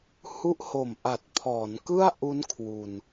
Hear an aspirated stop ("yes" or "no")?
yes